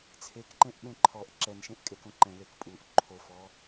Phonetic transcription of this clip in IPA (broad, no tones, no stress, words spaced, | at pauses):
t͡sʰekǃẽʔ ɓẽǃʰɔʔ ǁɛnʃẽʔ kʼekõǃɛ̃ lekpʼuʔ ǃʰofɔ